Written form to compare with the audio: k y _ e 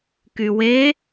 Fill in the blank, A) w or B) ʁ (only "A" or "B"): A